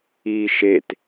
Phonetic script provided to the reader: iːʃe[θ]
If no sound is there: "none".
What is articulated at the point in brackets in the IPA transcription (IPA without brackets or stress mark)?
t